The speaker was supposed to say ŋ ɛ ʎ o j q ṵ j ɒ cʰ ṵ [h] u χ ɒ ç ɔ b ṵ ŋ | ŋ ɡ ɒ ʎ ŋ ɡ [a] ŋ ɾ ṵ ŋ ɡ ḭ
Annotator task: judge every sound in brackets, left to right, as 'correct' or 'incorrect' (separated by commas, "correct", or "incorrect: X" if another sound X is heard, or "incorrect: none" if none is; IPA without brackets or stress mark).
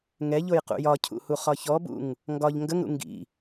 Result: correct, incorrect: ə